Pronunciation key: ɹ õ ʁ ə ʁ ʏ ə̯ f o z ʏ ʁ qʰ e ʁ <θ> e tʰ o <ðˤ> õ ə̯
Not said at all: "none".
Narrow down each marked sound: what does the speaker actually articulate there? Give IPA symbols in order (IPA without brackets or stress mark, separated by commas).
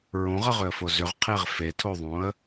f, ðˤ